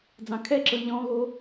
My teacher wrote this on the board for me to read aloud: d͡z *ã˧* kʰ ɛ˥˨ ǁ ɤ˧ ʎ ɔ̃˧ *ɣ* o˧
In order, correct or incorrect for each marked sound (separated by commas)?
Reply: incorrect, correct